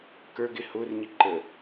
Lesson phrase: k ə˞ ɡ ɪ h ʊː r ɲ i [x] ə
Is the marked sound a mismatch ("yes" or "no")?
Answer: yes